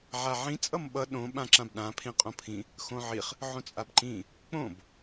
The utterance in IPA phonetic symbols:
ʕ a ʕ ĩ t͡sʼ ʌ m ɓ ʌ ɗ õ ɓ ã ǁ ã b ɗ ã pʰ ĩ qʼ õ pʰ ĩ | x õ ʕ i χ | ʕ õ t͡sʼ a b ǃ ĩ | k͡p õ b

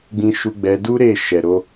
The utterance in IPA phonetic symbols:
ɡ͡b ĩ˧ ʃ u˧ ɡ͡b ɛ˧ d u˦ ɾ e˦˨ ʃ ɛ˨ ɾ o˧

